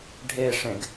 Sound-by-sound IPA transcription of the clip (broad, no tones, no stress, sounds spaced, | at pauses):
ɖʱ e ʂ ẽ ɡ